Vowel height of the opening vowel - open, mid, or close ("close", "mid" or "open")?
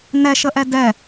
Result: mid